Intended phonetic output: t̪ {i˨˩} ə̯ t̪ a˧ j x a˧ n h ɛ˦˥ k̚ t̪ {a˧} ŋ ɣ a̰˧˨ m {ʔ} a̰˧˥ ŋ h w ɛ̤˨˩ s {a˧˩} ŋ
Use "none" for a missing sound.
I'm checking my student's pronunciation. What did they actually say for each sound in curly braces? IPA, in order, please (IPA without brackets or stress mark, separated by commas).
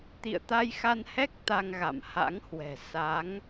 ḭ˧˨, a˧, h, a˨˦